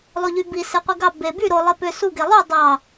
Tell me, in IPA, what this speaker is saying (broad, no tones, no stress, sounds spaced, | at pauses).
lˠ o ʎ y b i s e qʷ i ɡ ɑ b e b y ɾ o lˠ e p ø s u ɡ e lˠ y dˤ ɑ